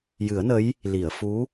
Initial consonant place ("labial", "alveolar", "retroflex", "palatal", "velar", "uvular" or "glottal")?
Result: palatal